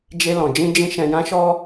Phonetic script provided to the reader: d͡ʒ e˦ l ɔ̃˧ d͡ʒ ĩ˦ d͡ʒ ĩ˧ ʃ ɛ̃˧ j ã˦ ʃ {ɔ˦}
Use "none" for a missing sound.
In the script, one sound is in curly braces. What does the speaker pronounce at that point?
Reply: ɔ˦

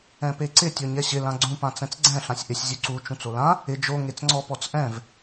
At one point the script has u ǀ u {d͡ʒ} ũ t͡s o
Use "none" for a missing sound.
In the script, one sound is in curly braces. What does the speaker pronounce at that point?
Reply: t͡ʃ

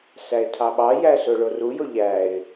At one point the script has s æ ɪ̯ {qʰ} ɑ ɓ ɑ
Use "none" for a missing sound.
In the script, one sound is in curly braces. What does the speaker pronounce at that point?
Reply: tʰ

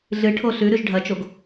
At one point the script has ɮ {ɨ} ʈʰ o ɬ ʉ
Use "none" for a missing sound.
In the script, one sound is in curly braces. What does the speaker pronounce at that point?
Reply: ɨ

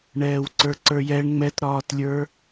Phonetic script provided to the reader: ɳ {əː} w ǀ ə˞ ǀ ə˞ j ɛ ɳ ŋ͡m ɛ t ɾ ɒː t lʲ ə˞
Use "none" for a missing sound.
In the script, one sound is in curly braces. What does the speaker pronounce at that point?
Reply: ɛː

